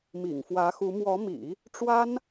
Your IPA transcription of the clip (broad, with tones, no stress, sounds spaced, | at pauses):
m ḭ˨˩ ŋ f w ä˧˥ x u˧˥ m w ɔ˧˥ m ḭ˨˩˦ | ʈ͡ʂ w a˥ n